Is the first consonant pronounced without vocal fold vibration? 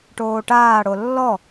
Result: yes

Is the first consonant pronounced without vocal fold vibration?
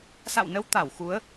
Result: yes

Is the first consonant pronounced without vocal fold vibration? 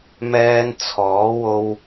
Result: no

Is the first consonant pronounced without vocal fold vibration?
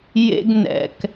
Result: no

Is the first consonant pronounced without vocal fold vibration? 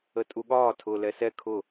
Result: yes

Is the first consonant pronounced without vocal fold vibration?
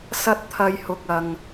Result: yes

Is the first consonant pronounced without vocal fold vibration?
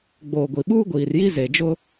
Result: no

